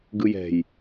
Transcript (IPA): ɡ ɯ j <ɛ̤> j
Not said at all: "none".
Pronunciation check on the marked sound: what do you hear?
ɛ̤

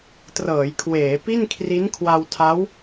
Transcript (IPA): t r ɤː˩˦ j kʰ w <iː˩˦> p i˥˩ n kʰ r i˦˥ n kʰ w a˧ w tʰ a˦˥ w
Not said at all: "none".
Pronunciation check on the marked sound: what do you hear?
eː˩˦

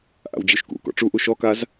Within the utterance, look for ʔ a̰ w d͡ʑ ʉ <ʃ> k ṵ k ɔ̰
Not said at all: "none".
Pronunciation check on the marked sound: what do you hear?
ʃ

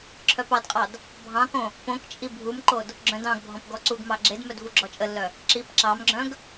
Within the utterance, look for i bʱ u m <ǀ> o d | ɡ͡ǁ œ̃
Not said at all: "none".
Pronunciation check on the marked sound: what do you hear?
ǃ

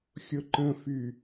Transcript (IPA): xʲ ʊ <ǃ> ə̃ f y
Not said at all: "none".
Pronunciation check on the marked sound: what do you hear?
ǃ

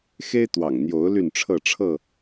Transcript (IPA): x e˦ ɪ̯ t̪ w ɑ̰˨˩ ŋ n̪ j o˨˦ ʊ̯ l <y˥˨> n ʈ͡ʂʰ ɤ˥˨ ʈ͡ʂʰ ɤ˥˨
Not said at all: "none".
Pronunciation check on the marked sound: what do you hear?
y˥˨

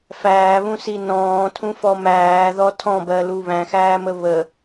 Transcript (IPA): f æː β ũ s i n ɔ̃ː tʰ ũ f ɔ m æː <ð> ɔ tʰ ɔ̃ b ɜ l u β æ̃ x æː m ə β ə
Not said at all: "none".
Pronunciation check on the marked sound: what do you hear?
ð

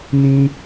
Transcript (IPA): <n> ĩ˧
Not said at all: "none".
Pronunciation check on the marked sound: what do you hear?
n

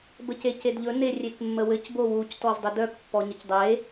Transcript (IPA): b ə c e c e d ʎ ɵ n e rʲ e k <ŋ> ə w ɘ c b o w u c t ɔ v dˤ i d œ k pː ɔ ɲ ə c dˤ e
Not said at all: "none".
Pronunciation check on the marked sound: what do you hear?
mː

